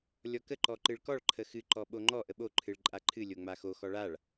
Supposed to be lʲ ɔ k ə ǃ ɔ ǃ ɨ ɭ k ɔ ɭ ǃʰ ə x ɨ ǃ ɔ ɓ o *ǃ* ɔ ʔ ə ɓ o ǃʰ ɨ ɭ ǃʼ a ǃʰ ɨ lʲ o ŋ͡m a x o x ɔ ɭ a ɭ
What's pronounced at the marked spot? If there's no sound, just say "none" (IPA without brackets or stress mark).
ŋ͡ǃ